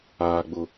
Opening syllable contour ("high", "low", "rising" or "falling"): low